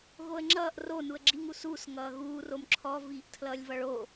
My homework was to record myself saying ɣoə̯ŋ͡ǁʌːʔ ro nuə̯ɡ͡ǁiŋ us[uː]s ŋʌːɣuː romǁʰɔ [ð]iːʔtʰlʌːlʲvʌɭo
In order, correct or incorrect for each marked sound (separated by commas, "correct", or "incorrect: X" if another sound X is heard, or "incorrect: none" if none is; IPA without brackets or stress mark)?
correct, incorrect: v